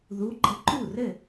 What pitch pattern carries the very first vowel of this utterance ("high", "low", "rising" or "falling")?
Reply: rising